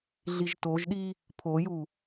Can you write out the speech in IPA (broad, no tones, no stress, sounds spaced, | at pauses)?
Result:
ɮ i ʒ t o ʒ ɗ i | pʰ o j u